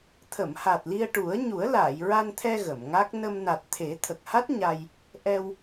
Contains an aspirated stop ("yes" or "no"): yes